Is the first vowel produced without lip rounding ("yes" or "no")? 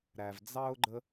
yes